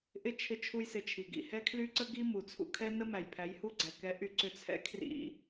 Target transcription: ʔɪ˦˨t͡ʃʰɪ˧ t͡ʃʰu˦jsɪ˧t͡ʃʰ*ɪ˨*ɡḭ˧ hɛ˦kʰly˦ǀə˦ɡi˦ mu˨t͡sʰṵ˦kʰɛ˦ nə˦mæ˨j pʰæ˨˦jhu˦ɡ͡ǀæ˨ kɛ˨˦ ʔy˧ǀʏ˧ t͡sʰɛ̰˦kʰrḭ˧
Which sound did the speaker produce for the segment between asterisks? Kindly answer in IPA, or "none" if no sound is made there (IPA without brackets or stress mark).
i˨